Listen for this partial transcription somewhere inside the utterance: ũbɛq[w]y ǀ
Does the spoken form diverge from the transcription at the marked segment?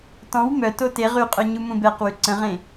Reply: no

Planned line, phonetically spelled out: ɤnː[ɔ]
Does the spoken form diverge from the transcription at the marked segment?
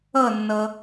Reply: yes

